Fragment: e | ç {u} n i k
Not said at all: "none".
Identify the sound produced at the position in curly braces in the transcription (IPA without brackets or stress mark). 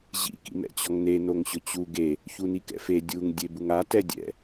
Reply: u